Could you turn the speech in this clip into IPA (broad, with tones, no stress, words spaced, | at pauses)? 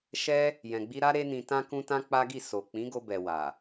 ʃɛ˧ | jɛ̃˨ɡ͡bi˧ɾa˦ ɾe˦nĩ˧tã˦ kũ˦tã˦k͡pa˦ɡi˦˨ so˨ k͡pĩ˨˦ɡo˧bɛ˨ wa˨